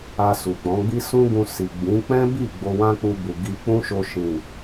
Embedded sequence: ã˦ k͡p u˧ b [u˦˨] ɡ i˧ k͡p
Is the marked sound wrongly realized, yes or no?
yes